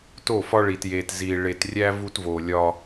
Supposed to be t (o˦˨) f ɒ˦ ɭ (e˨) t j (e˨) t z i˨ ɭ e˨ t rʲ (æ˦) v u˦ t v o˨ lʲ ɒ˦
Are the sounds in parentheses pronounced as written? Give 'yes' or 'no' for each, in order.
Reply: yes, no, yes, yes

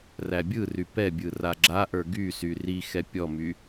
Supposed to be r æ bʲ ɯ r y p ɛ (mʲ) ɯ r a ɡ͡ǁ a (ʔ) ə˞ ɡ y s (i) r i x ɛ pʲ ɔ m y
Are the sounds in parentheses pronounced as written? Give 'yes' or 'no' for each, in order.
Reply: no, yes, no

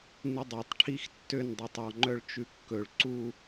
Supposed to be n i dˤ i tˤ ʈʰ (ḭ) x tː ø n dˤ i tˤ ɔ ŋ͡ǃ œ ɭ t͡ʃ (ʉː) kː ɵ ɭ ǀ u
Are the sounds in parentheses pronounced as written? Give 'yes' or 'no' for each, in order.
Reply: no, no

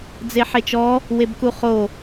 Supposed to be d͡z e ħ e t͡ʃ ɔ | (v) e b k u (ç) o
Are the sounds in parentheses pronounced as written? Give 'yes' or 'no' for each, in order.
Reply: no, no

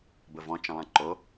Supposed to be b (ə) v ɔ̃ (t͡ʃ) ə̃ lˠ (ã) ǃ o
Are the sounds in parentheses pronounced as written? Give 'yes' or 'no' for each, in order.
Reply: yes, yes, yes

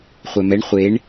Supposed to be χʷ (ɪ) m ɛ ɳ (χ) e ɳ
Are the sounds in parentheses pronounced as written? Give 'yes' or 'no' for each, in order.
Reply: no, no

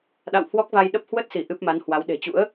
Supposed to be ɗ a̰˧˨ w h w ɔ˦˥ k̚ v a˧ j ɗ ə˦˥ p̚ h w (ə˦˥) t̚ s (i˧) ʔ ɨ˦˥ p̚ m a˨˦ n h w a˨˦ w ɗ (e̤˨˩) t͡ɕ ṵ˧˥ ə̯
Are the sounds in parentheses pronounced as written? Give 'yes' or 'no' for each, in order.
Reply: yes, no, yes

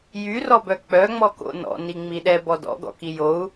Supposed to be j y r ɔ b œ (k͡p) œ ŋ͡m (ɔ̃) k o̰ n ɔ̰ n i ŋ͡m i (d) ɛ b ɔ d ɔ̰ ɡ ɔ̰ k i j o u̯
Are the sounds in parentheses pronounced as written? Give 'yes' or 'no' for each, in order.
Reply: yes, no, no

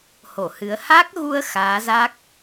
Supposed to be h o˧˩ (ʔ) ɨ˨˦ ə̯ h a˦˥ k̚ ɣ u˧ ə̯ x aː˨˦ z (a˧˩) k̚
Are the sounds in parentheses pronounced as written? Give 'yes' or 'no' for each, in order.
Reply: no, no

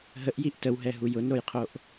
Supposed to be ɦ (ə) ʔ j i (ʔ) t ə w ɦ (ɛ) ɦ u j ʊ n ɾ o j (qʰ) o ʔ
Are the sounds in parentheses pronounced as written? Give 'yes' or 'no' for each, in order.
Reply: yes, yes, yes, yes

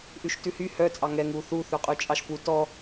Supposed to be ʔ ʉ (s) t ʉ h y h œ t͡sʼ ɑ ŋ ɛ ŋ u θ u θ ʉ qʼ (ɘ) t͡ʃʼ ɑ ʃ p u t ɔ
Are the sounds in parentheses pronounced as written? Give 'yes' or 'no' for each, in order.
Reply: no, no

